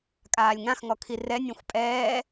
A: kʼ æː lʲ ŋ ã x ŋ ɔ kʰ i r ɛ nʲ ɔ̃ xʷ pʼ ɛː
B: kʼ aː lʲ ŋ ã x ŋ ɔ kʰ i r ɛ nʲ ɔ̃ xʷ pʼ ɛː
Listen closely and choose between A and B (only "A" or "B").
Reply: B